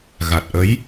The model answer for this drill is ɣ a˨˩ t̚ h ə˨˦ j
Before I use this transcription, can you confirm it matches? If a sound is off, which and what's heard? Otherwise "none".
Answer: h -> ʔ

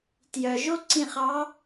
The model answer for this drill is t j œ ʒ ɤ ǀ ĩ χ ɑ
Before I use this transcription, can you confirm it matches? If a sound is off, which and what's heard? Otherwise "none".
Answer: ɤ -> o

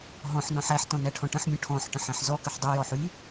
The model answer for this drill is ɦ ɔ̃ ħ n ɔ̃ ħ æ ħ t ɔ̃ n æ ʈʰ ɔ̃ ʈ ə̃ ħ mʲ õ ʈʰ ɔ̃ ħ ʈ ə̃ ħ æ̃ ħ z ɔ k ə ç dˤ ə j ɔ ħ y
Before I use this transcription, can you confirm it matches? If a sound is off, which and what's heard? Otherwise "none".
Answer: ç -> ħ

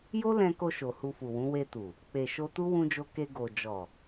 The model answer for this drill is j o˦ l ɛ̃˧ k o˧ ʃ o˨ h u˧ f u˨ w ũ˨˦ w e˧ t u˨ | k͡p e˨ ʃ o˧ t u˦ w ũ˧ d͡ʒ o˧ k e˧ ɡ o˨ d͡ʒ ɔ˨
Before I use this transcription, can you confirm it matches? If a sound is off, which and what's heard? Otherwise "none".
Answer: none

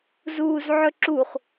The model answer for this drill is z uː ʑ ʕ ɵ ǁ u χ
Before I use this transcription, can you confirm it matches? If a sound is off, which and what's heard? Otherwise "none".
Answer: ʑ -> z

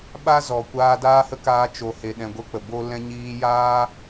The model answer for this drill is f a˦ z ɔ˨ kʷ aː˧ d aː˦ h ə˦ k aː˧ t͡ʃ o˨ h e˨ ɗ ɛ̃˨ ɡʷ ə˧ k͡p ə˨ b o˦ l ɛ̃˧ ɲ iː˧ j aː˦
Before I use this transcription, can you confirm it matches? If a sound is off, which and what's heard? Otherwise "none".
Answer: f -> ɓ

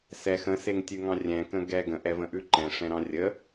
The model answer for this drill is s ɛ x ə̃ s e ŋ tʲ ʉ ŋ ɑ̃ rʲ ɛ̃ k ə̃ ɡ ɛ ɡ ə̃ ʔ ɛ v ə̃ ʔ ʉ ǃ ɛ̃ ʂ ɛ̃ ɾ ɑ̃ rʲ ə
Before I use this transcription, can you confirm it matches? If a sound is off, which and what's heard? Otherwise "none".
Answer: none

